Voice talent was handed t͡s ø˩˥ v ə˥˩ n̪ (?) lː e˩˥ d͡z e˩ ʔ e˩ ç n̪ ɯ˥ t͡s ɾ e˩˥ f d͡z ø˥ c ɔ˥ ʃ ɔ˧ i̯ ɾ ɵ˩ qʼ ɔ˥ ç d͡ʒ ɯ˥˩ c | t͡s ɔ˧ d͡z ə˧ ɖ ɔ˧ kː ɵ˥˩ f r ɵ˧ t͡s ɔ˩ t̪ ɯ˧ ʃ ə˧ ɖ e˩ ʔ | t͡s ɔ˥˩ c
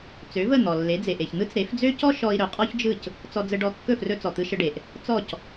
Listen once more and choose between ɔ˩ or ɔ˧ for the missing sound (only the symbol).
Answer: ɔ˩